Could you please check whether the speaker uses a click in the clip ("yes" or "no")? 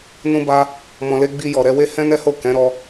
no